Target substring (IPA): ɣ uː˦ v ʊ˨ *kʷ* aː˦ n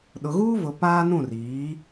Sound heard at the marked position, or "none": p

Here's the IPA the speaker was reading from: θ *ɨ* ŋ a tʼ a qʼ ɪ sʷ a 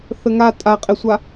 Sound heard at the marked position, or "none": ə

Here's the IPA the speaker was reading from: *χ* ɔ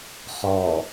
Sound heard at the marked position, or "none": χ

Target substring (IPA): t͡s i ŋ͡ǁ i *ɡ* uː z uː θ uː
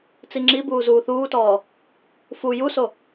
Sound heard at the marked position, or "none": b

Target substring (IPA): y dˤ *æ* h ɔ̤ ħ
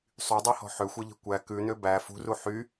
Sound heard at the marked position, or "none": ɛ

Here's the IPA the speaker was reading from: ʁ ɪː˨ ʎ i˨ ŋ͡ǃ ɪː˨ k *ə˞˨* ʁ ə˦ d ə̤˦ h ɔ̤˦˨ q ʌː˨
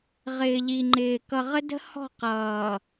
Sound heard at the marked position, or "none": ʌ˨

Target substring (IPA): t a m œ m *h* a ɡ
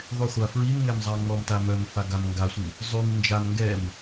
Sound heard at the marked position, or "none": f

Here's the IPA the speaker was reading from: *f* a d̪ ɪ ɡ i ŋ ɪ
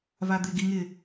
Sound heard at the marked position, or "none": v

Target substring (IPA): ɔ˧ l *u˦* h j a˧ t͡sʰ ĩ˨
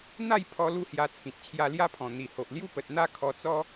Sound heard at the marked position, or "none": u˥˧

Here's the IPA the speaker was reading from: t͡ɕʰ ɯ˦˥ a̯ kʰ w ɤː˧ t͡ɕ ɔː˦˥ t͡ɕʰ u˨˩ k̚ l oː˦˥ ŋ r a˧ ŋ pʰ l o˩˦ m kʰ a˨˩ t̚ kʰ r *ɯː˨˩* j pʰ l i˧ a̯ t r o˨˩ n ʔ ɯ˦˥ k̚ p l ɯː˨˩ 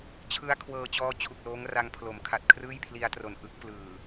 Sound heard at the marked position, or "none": ɯː˥˩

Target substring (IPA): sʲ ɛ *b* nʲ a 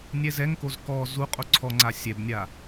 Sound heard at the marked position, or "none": b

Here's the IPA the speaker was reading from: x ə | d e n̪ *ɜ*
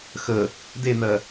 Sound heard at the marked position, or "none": ɜ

